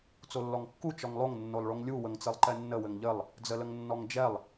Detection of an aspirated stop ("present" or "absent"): absent